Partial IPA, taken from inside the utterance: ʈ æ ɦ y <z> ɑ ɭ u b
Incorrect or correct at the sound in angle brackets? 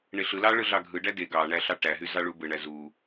correct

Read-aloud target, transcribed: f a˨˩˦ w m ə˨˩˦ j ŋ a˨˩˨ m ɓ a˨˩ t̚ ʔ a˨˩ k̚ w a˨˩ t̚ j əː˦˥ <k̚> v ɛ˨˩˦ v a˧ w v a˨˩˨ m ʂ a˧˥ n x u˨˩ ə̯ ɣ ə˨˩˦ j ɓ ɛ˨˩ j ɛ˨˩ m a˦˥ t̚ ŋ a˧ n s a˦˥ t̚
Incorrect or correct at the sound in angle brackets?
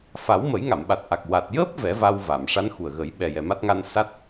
incorrect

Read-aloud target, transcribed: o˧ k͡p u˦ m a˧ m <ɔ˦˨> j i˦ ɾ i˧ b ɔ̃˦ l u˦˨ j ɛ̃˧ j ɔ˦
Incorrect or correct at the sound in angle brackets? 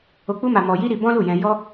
incorrect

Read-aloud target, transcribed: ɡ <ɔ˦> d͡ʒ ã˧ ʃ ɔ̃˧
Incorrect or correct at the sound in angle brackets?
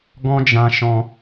incorrect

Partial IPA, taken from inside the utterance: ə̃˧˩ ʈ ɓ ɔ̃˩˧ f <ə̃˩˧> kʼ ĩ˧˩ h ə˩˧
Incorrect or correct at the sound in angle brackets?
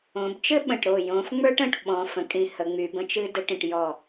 correct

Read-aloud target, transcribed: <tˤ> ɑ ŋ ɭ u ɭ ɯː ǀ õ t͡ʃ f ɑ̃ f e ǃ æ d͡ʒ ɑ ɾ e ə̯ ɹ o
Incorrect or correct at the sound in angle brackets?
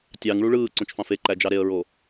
incorrect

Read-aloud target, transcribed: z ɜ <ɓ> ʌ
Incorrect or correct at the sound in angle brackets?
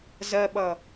correct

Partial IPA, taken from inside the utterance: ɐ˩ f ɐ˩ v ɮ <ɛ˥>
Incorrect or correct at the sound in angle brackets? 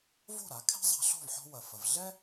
correct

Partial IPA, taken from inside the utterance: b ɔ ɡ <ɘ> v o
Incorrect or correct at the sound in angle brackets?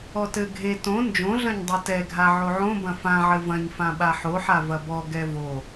incorrect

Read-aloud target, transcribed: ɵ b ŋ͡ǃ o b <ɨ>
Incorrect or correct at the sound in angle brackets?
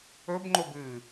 correct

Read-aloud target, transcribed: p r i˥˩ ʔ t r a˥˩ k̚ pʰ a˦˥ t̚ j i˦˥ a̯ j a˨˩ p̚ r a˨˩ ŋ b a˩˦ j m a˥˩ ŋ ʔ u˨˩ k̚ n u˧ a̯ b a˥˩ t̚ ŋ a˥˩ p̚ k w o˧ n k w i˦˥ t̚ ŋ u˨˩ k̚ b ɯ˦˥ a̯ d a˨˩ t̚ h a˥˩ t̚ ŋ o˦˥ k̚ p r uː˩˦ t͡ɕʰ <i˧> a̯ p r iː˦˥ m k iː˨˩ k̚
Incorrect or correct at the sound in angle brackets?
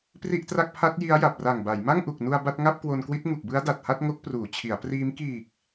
incorrect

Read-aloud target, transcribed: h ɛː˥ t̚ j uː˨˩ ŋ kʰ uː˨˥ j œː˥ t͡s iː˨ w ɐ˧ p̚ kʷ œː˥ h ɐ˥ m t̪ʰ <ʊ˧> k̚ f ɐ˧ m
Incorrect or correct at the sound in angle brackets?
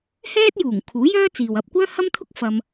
incorrect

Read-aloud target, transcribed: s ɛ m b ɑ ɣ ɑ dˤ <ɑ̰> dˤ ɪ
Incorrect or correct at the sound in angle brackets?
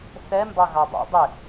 correct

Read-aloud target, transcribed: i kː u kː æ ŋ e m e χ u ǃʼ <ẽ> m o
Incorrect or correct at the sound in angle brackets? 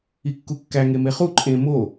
correct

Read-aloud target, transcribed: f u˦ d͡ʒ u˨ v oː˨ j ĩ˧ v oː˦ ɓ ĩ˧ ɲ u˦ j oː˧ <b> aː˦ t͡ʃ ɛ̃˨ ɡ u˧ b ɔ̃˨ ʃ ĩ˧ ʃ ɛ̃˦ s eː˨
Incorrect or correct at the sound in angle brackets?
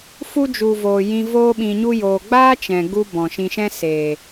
incorrect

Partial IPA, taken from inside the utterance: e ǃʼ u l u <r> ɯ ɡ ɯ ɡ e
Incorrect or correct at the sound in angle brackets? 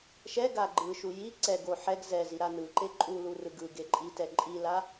correct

